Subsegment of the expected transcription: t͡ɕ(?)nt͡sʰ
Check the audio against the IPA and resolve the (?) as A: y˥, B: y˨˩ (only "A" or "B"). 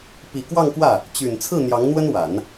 B